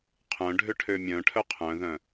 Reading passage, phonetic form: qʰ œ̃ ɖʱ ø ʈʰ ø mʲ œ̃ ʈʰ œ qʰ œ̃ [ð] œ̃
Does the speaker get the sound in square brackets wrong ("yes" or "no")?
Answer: no